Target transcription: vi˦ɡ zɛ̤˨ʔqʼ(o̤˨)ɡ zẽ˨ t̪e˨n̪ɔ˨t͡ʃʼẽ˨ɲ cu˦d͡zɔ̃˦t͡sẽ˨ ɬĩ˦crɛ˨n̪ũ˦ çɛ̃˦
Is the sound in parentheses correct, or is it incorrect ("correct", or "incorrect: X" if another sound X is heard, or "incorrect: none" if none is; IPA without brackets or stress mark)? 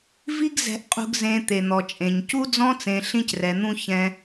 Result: incorrect: ṳ˨